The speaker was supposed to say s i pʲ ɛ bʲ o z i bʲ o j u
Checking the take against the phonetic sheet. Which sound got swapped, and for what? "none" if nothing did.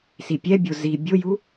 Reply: none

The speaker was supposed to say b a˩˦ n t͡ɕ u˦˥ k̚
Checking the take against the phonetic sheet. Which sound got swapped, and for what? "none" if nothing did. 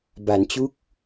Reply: none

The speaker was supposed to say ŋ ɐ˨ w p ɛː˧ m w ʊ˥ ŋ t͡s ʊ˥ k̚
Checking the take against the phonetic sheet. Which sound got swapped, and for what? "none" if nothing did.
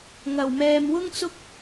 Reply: p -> m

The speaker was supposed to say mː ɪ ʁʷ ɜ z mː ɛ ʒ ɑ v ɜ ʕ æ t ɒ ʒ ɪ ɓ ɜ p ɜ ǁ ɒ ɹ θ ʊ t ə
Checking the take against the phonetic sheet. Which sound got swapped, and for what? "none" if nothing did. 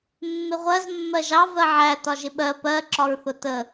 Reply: ɛ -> ɜ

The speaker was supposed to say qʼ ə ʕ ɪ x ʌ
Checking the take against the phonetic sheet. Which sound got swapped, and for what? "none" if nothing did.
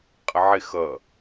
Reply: none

